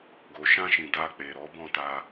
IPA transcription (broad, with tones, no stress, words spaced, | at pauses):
ɡo˨ʃã˧ʃĩ˨ da˧k͡pe˨ɾɔ˨˦ bɔ̃˦˨ta˧